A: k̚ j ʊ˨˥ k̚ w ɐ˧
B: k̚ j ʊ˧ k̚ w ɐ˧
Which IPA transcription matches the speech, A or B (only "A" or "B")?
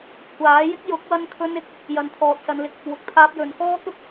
A